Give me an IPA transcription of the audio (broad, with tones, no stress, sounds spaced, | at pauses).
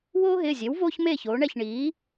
w oː˥ ɦ ɪː˩˧˩ zʲ e˩˥ w v oː˥ ç m eː˥˩ ç oː˩˧ ɳ ɛ˥˩ ç ɳ iː˩˥